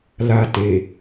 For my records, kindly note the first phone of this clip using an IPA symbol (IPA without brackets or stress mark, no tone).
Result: l